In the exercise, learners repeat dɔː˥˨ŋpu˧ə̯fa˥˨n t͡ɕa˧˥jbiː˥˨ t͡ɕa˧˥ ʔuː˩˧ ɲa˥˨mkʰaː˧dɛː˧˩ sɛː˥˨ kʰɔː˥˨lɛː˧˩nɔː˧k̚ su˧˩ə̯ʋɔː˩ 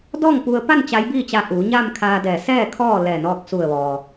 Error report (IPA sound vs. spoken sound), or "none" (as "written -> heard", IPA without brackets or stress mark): f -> p